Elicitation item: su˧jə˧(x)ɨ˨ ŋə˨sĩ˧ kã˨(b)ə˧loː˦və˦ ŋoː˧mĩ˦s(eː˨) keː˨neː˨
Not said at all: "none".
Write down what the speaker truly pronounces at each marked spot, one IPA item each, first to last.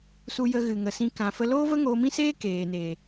ɣ, f, eː˦

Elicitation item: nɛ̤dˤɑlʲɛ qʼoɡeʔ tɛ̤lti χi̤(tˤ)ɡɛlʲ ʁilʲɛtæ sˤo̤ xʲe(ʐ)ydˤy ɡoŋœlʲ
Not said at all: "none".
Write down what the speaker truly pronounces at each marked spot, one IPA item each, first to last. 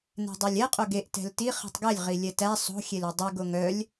tˤ, l

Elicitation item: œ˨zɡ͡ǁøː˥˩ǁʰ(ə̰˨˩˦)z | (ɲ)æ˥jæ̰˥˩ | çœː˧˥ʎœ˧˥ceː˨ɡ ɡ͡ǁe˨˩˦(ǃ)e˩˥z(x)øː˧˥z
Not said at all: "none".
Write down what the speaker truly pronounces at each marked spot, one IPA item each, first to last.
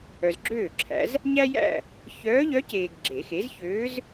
æ̰˨˩˦, ɲ, x, ç

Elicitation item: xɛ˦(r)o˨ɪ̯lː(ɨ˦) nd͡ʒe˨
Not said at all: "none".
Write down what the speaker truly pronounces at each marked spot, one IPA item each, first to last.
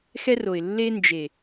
r, e˦

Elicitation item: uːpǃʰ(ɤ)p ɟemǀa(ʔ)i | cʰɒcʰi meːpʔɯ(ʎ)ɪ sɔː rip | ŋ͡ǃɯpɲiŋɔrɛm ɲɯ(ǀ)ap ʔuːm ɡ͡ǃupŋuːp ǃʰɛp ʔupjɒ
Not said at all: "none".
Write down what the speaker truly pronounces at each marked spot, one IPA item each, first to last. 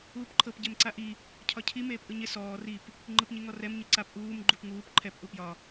ɤ, ʔ, ɲ, ǀ

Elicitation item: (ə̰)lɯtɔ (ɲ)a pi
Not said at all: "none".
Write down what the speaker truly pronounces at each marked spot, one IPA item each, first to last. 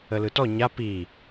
ə, ɲ

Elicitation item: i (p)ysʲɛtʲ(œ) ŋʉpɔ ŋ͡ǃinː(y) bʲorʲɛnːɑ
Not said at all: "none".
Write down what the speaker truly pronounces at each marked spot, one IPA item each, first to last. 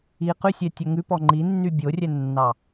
q, œ, y

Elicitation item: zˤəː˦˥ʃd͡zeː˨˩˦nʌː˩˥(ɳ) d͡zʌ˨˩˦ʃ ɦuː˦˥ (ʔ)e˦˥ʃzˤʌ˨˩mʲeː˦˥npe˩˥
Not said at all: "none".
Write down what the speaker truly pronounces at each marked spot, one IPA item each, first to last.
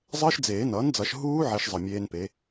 n, ʕ

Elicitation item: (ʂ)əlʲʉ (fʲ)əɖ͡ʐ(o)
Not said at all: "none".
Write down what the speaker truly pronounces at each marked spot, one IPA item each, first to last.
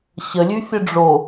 ɕ, fʲ, o

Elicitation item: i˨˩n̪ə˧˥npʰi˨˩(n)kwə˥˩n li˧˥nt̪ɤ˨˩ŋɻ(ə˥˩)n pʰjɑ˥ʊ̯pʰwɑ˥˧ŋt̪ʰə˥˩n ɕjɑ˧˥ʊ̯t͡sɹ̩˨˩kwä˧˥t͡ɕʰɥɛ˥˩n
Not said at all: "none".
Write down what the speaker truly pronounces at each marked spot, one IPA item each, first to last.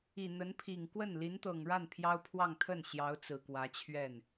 ŋ, a˥˩

